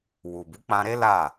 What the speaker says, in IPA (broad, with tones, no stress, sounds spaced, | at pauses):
w u˨ b u˨˦ k͡p ã˧ ɾ e˦ l a˦˨